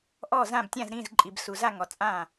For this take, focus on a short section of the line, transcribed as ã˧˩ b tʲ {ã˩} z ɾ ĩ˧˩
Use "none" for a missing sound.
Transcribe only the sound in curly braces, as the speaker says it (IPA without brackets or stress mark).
ã˧˩